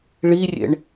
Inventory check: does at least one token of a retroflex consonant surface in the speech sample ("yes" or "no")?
yes